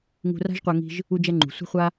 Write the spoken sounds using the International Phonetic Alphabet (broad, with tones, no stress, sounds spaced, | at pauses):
ŋ ṳ˧ r a̤˥ ʒ qʷ a˧ ŋ i̤˧ ʒ | u˥ d͡ʒ ɛ˥ ŋ͡ǃ ṳ˩ sʷ i̤˥ χʷ a˥